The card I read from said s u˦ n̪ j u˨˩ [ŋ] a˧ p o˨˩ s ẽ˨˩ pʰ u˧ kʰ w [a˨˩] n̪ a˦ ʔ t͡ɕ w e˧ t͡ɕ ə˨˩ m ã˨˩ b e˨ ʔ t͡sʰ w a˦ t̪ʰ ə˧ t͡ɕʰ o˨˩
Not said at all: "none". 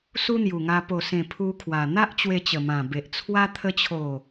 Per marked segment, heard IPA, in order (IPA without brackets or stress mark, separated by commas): ŋ, a˨˩